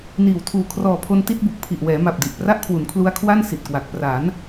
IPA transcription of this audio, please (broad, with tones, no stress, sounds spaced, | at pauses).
n iː˨˩ w tʰ uː˨˩ kʰ r ɔː˨˩ pʰ o˧ n t i˥˩ t̚ b u˨˩ k̚ pʰ i˨˩ ʔ w ɛː˩˦ m a˨˩ p̚ d i˨˩ ʔ p r a˥˩ ʔ kʰ w u˩˦ n kʰ l u˦˥ a̯ kʰ w a˥˩ n s i˨˩ t̚ k w a˨˩ k̚ p r a˩˦ n